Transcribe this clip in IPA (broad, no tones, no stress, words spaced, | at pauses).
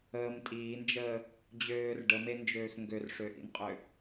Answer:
əːm tʼiːnd͡ʒəː | d͡ʑøːr ɖəmend͡ʒøːx ŋɡørʂøʔḭnqʼø